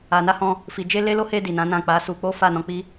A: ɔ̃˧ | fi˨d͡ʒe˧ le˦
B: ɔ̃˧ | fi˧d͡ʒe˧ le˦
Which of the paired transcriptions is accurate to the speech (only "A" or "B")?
A